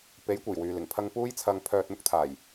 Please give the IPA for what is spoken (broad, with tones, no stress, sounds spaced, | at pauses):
p e˨˥ j kʷ e˨˩ j w yː˨ l ɪ˨˩ ŋ pʰ ɐ˧ ŋ p uː˥ j t͡sʰ ɐ˧ ŋ pʰ œː˧ t̚ m ʊ˥ k̚ t̪ʰ aː˨˩ j